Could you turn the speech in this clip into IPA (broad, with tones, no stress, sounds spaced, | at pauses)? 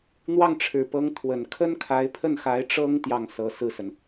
n̪ w ɑ˥˩ ŋ ʈ͡ʂʰ ɻ̩˨˩ p ɤ˧˥ ŋ t̪ʰ w ə˨˩ n kʰ ə˥ n kʰ a˧˥ ɪ̯ pʰ ə˥˩ n x a˧˥ ɪ̯ ʈ͡ʂ ɤ˥ ŋ t̪ j ɑ˥˩ ŋ s ɤ˧˥ s ɹ̩˥˩ s ə˩ n